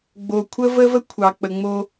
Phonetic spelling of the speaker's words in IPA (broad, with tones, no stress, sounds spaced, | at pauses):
ɡ͡b o˨ kʷʰ ə˦ v ə˦ v ə˦ kʷʰ ɑ˨ k͡p ə˨ ŋ͡m o˦